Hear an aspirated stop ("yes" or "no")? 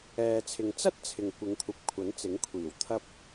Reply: yes